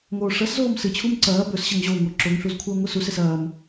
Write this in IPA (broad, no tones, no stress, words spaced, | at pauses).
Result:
ŋoːʂɐszoːm sɨt͡ɕʰum ǀɐː bɵs ɕɐŋʑoːŋo ǁoŋɬuz kʷʰɐːŋʷɨsuses ɐːm